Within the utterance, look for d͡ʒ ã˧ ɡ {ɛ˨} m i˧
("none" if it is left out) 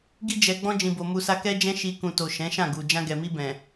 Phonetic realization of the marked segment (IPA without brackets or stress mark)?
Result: ɛ˨